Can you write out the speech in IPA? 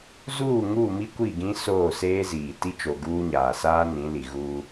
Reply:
zuː˦˨ ŋuː˦˨mi˦ kʷi˦˨ɡĩ˦ soː˦˨seː˦ziː˨ ti˦t͡ʃo˨ ɡuː˦ɲaː˨ saː˦ nĩ˨˦ li˨ɣuː˦

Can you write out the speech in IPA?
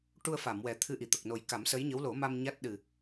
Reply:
ʈu˧ə̯fa˨˩˨m wɛ˨˩t̪ʰɨ˧ ʔi˨˩˨t̪ə˨˩k̚no˨˩j ka˨˩˦msə˧˥jɲə˧˥w lo˨˩˦ma˧m ɲa˦˥t̚ ɗɨ˨˩

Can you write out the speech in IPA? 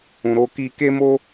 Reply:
ũ˨ɾo˧ki˧ ke˦mo˦

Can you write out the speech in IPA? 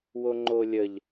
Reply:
woŋ͡ǃolʲəʎ

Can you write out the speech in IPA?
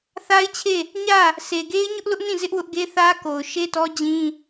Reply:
θa˦ɪ̯t͡ɕʰe˦˨ | ɲä˦˨ | se˨ɡe˦ɪ̯ ɲʊ˦ʔlʊ˦ʔnĩ˦˨ zɪ˦ʔwʊ˦ʔɡe˦θä˦ ko˨ʊ̯ʃe˦tɔ˦ d͡ʑĩ˦

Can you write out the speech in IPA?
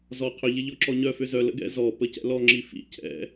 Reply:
zɔ qʰʏ ʎɪʎɔǁɔɲœ fʏzœ lə̰ɡɛ̰ zɔ pəcɛ̰lɔ ŋ͡ǁifḭ cʰɛ̰

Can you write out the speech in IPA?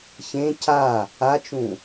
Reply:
çẽ ca | at͡ʃũ

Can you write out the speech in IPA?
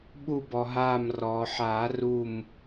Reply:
ɓu˧˩bɔ˩ɦaː˧˩m rɔː˩ħaː˨˩˦ ru˧˩m

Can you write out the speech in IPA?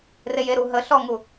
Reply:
rejeɾu ɦəɬɔŋu

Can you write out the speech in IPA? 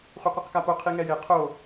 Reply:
χʷiqʷɯqkapo qʰiŋɛje qʰo

